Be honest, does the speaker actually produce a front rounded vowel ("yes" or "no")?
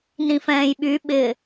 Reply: yes